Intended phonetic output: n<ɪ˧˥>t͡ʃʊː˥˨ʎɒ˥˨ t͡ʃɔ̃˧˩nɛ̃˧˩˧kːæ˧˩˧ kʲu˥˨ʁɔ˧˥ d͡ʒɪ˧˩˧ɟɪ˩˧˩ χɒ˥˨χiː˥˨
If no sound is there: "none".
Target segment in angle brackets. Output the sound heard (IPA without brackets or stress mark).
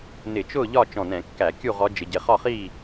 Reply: ɪ˧˩˧